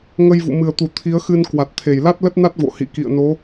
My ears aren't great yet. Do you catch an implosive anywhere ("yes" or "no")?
no